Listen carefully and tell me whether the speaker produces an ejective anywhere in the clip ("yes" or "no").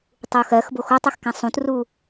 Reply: no